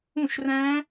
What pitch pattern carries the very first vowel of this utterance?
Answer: falling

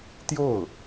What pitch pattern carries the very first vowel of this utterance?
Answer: falling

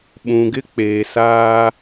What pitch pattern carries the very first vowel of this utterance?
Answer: low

